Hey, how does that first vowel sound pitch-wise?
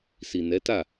low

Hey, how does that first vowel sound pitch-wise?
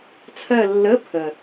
falling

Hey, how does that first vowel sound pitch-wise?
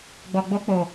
low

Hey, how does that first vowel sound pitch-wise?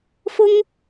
high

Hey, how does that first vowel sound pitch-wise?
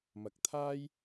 rising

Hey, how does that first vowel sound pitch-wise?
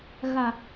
low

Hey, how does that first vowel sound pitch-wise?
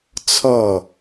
falling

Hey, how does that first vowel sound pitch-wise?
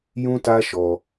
high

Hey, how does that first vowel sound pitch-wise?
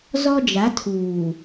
high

